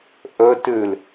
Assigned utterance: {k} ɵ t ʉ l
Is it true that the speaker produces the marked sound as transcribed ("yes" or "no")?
no